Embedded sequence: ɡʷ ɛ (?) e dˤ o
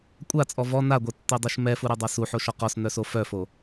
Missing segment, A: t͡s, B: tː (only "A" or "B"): B